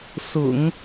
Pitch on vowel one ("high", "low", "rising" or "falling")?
low